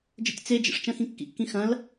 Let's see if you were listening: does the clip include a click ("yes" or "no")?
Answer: no